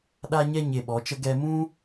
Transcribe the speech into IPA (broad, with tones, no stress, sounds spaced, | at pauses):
ɗ a˦ ɲ ɛ˦ ɲ e˧ ɓ ɔ˨˦ t͡ʃ ə˦ ɡ ɛ˧ m ũ˦